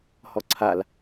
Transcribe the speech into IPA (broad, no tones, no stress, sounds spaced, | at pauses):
h ɔ ǀʰ a l